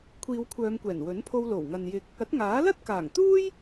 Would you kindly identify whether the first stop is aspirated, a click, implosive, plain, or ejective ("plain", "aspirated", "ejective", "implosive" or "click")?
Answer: aspirated